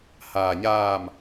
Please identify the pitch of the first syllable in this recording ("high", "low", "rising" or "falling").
low